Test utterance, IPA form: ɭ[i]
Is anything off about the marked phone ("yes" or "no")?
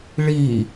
no